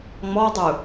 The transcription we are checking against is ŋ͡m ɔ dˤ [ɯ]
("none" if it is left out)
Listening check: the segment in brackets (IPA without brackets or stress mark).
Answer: ɯ